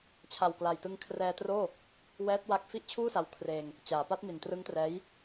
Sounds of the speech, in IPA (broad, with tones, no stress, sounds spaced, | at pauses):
t͡ɕʰ a˨˩ w k l a˨˩ j t ɯ˧ ŋ kʰ r ɛː˧ t r oː˥˩ | w ɛː˦˥ t̚ w a˦˥ k̚ f i˥˩ ʔ t͡ɕʰ uː˥˩ s a˧ w kʰ r eː˧ ŋ | t͡ɕ aː˩˦ p a˦˥ t̚ m i˨˩ n t r ɯ˦˥ ŋ t r ɛː˦˥ j